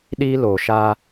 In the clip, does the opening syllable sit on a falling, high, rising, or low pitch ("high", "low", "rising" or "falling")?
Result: high